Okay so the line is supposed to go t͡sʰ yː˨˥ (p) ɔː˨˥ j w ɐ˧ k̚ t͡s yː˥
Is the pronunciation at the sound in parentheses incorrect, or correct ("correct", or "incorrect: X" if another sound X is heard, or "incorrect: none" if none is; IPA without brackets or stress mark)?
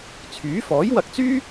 incorrect: f